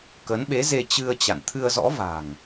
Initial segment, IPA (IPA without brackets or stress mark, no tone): k